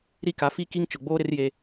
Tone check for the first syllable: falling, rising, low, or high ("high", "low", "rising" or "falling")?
falling